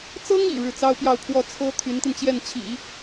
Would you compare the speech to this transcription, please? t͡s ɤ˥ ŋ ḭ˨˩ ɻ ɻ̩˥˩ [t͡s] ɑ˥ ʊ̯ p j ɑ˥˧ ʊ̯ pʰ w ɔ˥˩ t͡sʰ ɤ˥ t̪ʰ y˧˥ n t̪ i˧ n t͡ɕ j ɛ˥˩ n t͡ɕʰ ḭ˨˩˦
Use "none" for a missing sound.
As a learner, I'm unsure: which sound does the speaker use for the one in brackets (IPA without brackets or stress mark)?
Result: t͡s